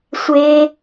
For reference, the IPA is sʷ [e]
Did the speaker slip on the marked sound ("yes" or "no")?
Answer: no